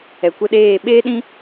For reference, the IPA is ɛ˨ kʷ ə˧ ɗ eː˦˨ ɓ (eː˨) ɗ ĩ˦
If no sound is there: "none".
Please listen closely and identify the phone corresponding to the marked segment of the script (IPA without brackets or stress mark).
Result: eː˦